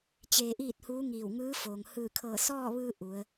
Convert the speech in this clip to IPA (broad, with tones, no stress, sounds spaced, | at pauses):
t͡ɕ eː˧ ʔ iː˥˨ t̚ h uː˧˥ ŋ iː˧˩ w ŋ ɯː˧˥ f oː˩ ŋ h ɯː˧˩ kʰ ɤː˧˩ s ɔː˥˨ ʋ ɯː˧ ʔ u˩˧ ə̯